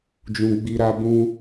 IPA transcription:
d͡ʒ ũ˧ ɡ͡b i˧ ɾ a˧ b ũ˦

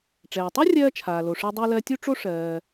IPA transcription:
ʈ͡ʂ ɛː˩ tˤ u˥ rʲ ɜː˥ t͡ʃʰ aː˩ l o˩ ʂ ɜ˦ dˤ ɜ˥ l ɜ˦ tʲ u˥ ʈ͡ʂ o˥ ʂ ɜː˨

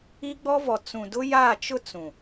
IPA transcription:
i˦ ɡ͡b ɔ˦ v ɔ˨ t͡s ũ˨ d ʊ˦ j aː˦˨ t͡ʃ ʊ˦ t͡s ũ˨

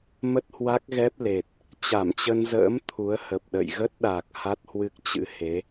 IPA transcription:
m ə˦˥ t̚ h w a˦˥ k̚ ɣ ɛ˦˥ p̚ l e˨˩ t̚ | t͡ɕ a˧˩ m t͡ɕ ə˧ n z ə̰ː˧˥ m t̪ʰ u˨˦ ə̯ h ə˨˩ p̚ ɗ ə̰˧˨ j ɣ ə˦˥ t̚ ɗ a˨˩ k̚ h a˦˥ t̚ h w ɨ˦˥ k̚ t͡ɕ ɨ̰˧˥ h e˨˦

